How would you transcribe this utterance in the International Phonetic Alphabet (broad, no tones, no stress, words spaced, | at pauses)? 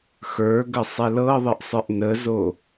xə˞ɡə sˤɛlɤðˤəʔsˤə˞ʔ nəzo